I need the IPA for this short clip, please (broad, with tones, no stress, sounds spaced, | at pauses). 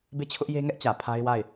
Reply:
b e˦˨ t͡ɕʰ ʊ˦ ʔ j e˦ ŋ ɛ˦ ʔ t͡ɕ ä˨ pʰ a˦ ɪ̯ w a˦˨ ɪ̯